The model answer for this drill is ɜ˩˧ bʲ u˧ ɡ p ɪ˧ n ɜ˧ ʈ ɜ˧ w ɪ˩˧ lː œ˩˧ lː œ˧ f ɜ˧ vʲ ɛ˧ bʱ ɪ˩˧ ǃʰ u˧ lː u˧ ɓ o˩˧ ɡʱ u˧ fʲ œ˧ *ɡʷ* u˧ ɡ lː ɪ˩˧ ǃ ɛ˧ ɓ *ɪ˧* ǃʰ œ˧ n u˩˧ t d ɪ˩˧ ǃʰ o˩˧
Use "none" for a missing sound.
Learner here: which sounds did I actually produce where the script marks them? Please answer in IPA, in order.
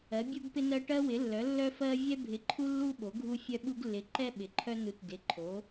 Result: ɓ, ɪ˩˧

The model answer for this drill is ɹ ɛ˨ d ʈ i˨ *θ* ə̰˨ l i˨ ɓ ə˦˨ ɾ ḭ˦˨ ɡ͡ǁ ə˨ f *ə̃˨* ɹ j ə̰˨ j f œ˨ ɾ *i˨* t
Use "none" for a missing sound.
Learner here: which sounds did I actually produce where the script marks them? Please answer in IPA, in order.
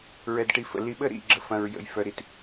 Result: f, ɐ̃˨, i˨

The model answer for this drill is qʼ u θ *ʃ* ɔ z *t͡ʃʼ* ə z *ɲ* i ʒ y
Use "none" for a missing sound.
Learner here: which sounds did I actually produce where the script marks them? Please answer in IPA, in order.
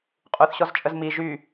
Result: ɕ, t͡ʃʼ, m

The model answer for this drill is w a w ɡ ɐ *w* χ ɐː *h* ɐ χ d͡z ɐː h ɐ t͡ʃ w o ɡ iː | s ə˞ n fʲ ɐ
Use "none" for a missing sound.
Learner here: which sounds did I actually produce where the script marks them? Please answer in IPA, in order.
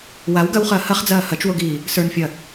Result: w, h

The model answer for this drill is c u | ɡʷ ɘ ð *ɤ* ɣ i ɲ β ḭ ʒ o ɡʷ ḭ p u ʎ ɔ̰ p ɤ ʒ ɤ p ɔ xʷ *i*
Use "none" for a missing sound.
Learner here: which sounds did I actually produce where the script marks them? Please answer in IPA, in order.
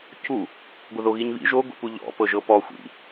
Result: o, ḭ

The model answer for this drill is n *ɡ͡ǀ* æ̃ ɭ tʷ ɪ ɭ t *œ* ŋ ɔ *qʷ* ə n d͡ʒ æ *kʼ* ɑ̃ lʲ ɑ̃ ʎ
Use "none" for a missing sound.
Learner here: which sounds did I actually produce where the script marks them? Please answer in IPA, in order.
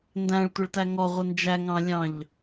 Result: d, æ, ʁʷ, ŋ

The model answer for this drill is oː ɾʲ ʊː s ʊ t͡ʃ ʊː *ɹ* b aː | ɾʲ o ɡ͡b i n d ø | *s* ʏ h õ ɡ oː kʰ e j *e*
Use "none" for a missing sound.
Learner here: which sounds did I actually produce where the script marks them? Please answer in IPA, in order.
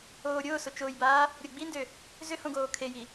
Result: j, z, i

